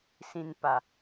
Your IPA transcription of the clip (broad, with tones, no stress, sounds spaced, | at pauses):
s ĩ˨ n p a˨